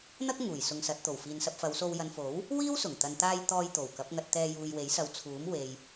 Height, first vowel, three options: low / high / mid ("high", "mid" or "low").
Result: low